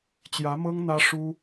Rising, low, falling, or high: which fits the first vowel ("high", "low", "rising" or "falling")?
rising